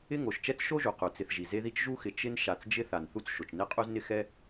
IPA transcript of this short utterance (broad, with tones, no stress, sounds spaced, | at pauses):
ɪ˥ ŋ o˩ ʃ t͡ʃ ɛ˥ t͡s ʃ o˥ ʒ u˩ q u˩ t͡s ɪ˨ θ ʒ i˩ z e˦ ð i˦ t͡ʃ ʒ u˥ x ɪ˨ t͡ʃ ɪ˦ n ʃ a˨ t͡s d͡ʒ ɪ˥ θ a˨ n θ u˥ t͡s ʃ o˩ t͡ʃ n e˥ qʼ u˥ z n ɪ˥ x ɛ˥